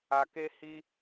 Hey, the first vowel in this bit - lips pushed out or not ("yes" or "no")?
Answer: no